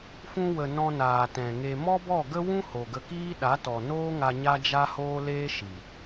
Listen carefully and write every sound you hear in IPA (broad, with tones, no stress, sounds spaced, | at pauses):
f ũ˧ w ə˨ n ɔ̃˧ n aː˨ t ɛ̃˨ ŋ e˧ m ɔ˦ b ɔ˦˨ ɡ ə˦ w ũ˦ h o˨ ɡ ə˧ k iː˦ ɗ a˨˦ t ɔ˨ n oː˦ ŋ a˧ ɲ a˦ d͡ʒ a˦ h oː˦ l eː˦ ʃ i˨